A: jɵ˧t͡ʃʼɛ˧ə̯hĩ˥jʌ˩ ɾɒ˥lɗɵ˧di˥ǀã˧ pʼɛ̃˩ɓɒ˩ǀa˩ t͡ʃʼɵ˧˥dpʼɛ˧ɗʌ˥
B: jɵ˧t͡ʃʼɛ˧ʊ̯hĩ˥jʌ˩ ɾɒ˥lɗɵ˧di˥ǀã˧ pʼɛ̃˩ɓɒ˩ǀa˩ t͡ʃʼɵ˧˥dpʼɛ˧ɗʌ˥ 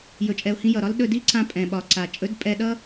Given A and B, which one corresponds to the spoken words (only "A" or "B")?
B